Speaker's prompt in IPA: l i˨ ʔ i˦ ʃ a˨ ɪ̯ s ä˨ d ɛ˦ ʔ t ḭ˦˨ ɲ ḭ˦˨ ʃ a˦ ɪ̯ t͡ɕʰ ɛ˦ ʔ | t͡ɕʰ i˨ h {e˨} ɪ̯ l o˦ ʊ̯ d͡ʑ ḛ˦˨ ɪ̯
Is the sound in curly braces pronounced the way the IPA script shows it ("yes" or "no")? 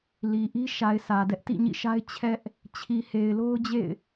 yes